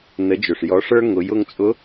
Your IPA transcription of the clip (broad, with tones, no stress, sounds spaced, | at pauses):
n ə˩˧ d͡ʒ ɵ˩ ʂ j ɔ˩˧ ʂ ə˞˧ ŋ ʊ˩˧ j ʊ˧ ŋ t͡sʼ ʊ˧˥